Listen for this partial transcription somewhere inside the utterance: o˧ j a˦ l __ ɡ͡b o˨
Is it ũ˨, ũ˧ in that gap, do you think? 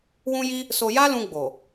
ũ˧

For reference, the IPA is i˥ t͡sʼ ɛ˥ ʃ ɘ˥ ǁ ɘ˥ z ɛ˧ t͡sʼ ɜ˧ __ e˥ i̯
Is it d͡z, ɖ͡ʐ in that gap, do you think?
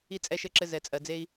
d͡z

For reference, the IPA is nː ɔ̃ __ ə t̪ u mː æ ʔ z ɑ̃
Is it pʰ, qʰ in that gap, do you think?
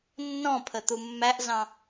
pʰ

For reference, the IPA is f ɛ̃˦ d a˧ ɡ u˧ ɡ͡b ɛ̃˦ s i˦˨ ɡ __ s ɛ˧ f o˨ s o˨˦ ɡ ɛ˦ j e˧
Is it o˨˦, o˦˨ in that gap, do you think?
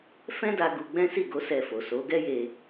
o˨˦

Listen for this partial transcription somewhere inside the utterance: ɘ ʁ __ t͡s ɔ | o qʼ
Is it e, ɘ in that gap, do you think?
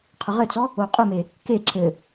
ɘ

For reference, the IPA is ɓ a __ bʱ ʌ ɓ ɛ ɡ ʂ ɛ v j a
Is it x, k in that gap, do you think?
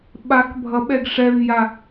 k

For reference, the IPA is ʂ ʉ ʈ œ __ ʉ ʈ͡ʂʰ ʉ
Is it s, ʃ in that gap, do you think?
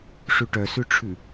s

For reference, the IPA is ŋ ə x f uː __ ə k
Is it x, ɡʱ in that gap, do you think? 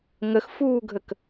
ɡʱ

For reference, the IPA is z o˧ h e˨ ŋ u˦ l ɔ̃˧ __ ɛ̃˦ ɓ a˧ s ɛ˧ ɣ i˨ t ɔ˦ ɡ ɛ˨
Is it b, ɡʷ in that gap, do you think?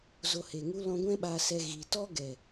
ɡʷ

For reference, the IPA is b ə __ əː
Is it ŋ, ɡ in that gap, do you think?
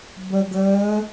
ɡ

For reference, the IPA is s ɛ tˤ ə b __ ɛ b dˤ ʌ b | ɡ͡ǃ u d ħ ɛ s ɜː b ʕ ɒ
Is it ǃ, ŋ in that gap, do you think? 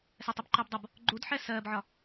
ǃ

